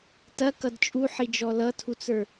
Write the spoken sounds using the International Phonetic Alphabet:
t ɐ k ʌ d t͡ʃʼ u ħ i d͡ʒ ɔ l ʌ tʰ u t͡s ə˞

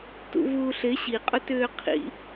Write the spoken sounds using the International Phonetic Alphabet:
t ṵ v uː ɬ ɪ ɕ i qʼ ʊ t ʏː qʰ ḭ

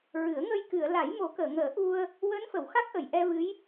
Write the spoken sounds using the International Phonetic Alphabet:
ɹ ɨ˨˩˦ ə̯ ŋ ə˧ j k ɨ˨˩˨ ə̯ l a˨˩˦ j m o˨˩˦ k əː˨˩˨ ŋ əː˨˩˦ ʔ u˧ ə̯ | w əː˧˥ n f ə˨˩˨ w x a˦˥ k̚ ʔ ə˨˩˨ j ʔ ɛ˧ v ɨ˧˥ j

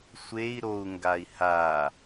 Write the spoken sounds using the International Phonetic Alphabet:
sʷ e i̯ ɾ o u̯ ŋ ɡ a i̯ h a

